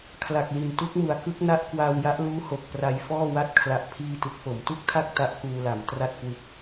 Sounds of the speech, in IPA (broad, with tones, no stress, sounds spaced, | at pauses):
kʰ l a˨˩ k̚ l i˨˩ n t u˦˥ k̚ m u˩˦ a̯ k ɯ˦˥ k̚ n a˦˥ ʔ k w aː˧ w j a˦˥ ʔ l uː˦˥ h o˨˩ k̚ p r a˧ j f ɔː˥˩ w a˥˩ t̚ kʰ l a˦˥ ʔ pʰ iː˥˩ t ɯ˦˥ k̚ p o˩˦ m t u˥˩ k̚ tʰ a˥˩ k̚ t a˦˥ ʔ k uː˧ l a˩˦ m t r a˥˩ t̚ k w ɯ˦˥ k̚